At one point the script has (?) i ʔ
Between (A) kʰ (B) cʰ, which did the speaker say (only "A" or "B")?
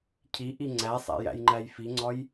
B